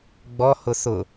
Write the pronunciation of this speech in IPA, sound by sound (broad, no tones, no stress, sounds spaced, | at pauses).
ɡ͡b ɔ h ʊ s ʊ